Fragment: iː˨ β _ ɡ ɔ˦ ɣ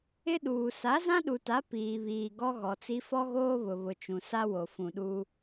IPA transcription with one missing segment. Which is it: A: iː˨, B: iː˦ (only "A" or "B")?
A